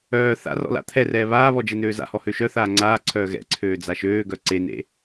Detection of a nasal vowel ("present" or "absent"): absent